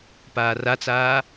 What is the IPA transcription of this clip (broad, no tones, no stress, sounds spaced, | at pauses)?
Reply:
p aː r a t͡s aː